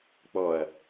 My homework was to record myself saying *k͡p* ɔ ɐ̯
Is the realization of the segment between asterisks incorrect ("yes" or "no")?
no